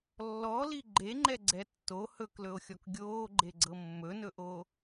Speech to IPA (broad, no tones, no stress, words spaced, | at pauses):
lːɔli ɡ͡ǃeŋ͡ǃɛɡ͡ǀɛ tːo hɵklɵo̯xʲɔk ɡʲoːɡ͡ǃeɡ͡ǀɤ mːɵnɵʔo